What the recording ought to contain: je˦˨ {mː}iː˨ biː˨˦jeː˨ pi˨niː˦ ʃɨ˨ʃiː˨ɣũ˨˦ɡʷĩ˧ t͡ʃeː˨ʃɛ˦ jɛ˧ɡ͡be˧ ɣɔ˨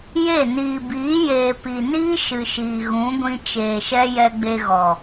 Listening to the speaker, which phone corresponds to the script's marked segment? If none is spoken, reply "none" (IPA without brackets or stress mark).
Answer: n